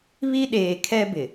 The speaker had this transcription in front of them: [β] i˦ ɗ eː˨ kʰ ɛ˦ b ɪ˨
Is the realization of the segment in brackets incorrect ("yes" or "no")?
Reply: no